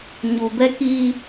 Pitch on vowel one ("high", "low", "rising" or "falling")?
low